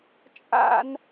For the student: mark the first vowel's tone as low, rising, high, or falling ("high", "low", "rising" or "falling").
high